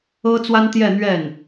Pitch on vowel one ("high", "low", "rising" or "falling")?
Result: high